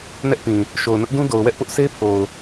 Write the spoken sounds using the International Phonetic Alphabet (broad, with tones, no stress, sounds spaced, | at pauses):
n ɛ˦ ʔ p ĩ˨ | ʃ o˨ ʊ̯ n ʊ˦ ʔ d ũ˦ d o˨ ʊ̯ w ɛ˦ ʔ p ʊ˦ ʔ s e˦ pʰ o˨ ʊ̯